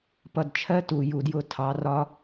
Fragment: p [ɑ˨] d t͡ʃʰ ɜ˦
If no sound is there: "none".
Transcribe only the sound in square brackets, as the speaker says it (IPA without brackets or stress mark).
ʌ˨